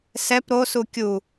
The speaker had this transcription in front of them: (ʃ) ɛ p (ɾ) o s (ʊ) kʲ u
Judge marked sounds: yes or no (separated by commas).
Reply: no, yes, no